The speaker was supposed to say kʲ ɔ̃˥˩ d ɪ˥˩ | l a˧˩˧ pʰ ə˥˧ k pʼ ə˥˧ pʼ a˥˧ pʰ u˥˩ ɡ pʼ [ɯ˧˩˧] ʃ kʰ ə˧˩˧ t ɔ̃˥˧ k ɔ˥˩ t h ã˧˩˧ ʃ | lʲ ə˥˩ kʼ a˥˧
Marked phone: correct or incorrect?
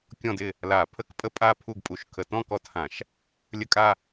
incorrect